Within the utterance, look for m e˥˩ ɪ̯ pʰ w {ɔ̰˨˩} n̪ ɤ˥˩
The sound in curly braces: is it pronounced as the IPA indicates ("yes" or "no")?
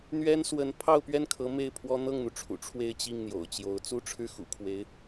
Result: no